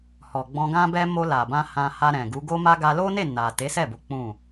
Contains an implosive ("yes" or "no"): no